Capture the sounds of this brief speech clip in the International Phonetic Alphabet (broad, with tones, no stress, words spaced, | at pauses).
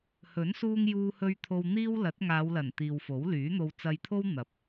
hɵ˨˥nsuː˧ŋjuː˧hɵ˧ɥ t̪ʰo˧wn̪iː˥w lɐ˨˥t̚ŋaː˨˧wlɐ˨˩n t̪iː˨wfo˨˥wlyː˨˥n̪o˧w t͡sɐ˧jt̪ʰo˥w n̪ɐ˨˥p̚